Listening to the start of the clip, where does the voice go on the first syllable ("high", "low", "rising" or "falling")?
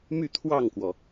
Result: falling